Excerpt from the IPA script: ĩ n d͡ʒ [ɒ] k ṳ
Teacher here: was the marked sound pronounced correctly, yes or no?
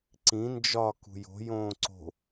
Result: yes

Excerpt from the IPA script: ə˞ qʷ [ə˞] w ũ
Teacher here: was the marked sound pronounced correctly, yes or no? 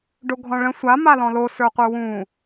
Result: yes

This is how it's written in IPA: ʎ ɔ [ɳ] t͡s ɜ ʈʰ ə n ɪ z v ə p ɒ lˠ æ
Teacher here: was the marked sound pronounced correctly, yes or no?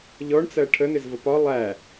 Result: yes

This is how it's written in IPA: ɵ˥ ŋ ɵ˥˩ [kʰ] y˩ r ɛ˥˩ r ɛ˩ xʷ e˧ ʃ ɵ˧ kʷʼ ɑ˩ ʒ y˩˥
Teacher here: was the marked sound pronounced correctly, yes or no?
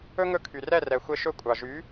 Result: yes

